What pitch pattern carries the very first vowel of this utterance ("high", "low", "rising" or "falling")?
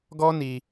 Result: high